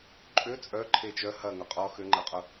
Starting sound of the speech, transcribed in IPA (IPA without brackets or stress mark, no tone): ǃʼ